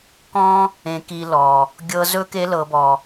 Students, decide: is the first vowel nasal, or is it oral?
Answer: nasal